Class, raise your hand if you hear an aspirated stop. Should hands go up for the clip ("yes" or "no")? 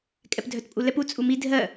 no